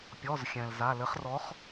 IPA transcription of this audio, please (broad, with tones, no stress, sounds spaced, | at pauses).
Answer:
pʲ ɔ˩˧˩ z xʲ ɛ̃˩ l z a˩˧˩ l ɘ˩˧ χ r ɔ˩˧ χ